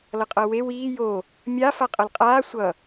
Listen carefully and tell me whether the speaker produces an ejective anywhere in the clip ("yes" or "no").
yes